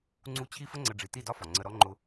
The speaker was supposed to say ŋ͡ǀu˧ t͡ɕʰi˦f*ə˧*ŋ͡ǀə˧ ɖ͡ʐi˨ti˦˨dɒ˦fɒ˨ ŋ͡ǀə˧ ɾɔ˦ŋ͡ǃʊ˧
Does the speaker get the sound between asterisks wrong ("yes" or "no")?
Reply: yes